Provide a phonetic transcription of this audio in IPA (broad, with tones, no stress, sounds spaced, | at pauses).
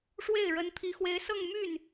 ʂ w e˥˩ ɪ̯ ɻ ə˧˥ n t̪ʰ i˧˥ x w e˧˥ ɪ̯ s ɤ˥˧ ŋ m y˥˩ n